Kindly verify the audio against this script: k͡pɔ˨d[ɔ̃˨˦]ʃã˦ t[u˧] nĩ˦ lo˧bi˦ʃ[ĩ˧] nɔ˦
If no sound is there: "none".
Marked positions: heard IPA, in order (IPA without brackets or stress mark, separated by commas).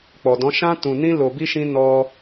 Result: ɔ̃˨˦, ũ˧, ĩ˦